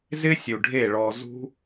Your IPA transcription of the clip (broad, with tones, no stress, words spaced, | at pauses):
zɪ˦sʲu˨ɖʱe˦˨ɭɔ˧ zṳ˦